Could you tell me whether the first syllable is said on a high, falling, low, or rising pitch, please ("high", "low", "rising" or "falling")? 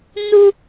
high